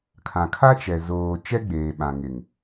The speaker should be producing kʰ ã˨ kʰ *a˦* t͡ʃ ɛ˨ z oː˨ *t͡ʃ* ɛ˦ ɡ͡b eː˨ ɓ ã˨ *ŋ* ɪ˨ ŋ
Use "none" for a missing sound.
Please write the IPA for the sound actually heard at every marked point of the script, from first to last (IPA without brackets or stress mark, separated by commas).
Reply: a˦, t͡ʃ, ŋ